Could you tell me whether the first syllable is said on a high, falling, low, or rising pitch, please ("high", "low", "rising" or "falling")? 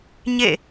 falling